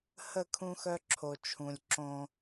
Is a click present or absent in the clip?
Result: present